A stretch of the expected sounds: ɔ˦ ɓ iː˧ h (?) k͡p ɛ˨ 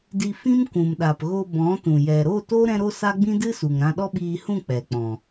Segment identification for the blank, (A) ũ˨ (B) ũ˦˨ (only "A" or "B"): B